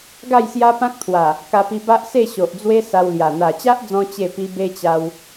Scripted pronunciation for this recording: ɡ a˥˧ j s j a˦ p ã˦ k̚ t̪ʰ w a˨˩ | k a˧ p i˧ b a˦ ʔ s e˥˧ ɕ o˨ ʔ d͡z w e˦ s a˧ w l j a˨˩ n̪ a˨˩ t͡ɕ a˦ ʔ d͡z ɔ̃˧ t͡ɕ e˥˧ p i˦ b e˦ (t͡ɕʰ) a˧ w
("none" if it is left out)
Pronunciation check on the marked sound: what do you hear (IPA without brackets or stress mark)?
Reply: t͡ɕ